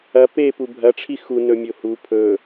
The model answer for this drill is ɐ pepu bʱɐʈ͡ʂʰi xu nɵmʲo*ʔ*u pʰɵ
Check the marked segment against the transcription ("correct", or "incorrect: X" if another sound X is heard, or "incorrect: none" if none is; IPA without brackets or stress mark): incorrect: h